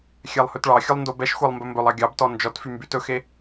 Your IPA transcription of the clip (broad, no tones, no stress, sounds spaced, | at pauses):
xʲ ɛ lˠ h ɵ t ɭ ɑ xʲ ɵ lˠ n d o b ɛ ʃ xʷ e lˠ m b ɵ m b ɵ lˠ ɑ ɡʲ ɑ b t ɔ n d͡ʒ ɔ t f y m b y t ɵ x e